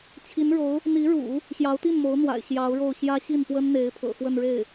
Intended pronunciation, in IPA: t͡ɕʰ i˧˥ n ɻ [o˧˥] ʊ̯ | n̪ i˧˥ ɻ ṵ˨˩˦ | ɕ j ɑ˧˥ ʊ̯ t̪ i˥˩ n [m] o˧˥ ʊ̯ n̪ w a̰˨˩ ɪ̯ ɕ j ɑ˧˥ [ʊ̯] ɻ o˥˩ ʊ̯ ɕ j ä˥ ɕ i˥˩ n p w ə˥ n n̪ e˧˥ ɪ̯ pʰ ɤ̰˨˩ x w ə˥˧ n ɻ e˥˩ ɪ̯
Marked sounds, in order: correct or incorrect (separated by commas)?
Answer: correct, correct, correct